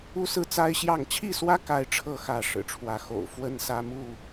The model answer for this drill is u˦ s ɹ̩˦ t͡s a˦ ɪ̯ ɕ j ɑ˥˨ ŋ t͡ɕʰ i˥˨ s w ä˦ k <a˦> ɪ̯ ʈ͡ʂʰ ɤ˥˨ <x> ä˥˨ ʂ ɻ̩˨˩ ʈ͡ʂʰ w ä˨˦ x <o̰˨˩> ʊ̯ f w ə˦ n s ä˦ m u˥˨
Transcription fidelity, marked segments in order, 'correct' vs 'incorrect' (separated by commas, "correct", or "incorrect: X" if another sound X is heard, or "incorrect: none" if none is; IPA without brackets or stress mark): correct, correct, correct